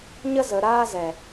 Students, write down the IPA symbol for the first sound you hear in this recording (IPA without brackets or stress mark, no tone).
ɲ